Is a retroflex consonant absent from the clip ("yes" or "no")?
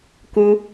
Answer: yes